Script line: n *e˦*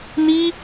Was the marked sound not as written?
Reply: yes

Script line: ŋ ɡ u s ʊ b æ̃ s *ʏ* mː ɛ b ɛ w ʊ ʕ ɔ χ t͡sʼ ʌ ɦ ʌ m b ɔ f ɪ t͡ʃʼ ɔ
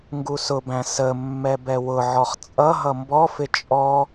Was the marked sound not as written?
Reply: yes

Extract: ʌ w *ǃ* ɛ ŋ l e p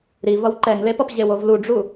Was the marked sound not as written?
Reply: no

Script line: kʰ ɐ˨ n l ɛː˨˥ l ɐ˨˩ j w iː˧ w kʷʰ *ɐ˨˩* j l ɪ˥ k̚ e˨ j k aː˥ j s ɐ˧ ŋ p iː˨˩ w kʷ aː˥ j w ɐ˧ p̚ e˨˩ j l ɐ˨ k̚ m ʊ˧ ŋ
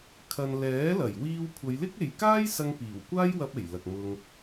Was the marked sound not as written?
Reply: yes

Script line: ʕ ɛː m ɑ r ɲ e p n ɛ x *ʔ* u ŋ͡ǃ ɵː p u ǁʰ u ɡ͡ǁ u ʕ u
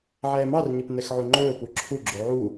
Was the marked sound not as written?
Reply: yes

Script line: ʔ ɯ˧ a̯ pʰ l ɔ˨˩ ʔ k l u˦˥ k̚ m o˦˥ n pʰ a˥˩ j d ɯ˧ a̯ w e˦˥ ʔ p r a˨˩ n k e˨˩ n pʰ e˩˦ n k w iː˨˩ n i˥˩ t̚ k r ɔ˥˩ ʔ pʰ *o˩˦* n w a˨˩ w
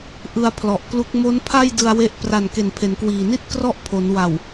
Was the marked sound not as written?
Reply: no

